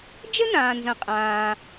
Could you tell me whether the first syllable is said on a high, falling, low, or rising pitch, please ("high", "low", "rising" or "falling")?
high